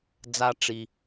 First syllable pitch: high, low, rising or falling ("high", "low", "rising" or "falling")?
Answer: low